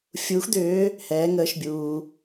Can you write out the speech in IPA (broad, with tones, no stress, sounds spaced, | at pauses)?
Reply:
fʲ uː˨˦ x d̪ ʏː˨˦ | h ɛː˨˦ ŋ əː˨˦ ʃ bʲ uː˩